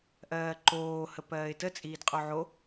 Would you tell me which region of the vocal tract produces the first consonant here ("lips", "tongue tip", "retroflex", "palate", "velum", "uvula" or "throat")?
throat